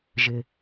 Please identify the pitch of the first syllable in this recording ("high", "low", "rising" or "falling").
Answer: low